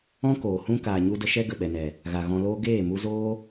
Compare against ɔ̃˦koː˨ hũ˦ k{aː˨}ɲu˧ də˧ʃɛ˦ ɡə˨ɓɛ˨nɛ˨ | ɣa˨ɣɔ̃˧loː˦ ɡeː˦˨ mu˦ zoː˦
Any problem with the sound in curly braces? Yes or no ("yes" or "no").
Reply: no